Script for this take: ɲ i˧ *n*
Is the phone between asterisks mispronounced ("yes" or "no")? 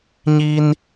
no